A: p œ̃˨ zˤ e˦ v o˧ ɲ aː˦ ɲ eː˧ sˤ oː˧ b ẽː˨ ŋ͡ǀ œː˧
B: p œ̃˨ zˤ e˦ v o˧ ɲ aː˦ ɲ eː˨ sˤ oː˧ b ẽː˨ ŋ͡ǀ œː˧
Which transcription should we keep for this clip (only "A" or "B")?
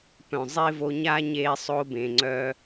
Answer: A